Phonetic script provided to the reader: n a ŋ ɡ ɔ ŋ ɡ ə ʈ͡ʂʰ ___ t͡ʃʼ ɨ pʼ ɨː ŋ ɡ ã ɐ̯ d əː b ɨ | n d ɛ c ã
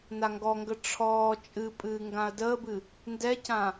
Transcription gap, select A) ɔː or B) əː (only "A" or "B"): A